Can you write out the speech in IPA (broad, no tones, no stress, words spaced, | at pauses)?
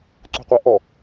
ǀṳqʷɛʔɔ